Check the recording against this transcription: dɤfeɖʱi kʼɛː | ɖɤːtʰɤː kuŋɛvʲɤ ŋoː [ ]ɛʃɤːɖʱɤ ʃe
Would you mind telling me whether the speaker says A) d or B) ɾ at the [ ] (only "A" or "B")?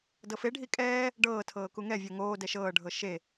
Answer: A